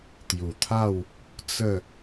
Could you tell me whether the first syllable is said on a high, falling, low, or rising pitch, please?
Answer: low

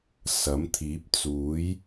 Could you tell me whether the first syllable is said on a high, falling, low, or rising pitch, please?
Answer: rising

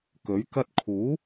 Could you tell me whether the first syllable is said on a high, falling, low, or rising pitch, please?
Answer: rising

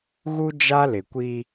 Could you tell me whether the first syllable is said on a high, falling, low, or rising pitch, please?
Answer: high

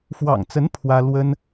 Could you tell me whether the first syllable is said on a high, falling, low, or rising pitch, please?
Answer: low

